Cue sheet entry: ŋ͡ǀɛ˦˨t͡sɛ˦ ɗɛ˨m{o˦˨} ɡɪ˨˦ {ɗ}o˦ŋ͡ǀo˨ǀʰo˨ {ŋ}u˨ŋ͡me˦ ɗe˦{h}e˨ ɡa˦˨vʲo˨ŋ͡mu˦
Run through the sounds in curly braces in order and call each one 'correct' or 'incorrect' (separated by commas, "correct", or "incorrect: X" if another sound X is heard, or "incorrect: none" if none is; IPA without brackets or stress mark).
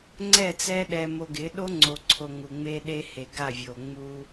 incorrect: o˨, correct, correct, correct